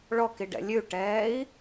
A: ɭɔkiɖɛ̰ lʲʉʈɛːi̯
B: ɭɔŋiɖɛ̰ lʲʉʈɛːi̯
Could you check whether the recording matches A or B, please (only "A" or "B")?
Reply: A